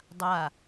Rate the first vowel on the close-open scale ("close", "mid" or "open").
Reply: open